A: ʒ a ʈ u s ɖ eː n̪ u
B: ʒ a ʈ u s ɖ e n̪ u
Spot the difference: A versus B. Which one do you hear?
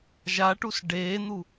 A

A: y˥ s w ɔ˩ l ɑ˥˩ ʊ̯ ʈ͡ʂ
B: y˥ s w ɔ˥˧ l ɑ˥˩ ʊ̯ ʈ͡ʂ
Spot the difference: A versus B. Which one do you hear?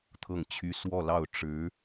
B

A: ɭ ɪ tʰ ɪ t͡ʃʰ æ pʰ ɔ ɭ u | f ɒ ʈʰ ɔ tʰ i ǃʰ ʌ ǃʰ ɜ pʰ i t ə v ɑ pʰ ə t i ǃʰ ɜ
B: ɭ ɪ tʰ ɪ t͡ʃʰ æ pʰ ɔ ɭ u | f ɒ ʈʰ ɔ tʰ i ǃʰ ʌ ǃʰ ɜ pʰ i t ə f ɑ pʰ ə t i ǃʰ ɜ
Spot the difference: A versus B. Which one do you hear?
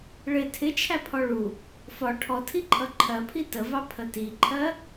A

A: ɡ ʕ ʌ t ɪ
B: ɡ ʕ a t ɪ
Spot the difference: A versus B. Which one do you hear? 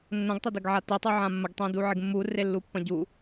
B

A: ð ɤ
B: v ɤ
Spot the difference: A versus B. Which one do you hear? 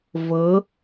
B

